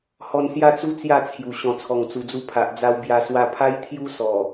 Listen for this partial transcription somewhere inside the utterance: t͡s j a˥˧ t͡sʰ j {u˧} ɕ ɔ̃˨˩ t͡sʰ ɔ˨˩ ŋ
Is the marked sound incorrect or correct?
incorrect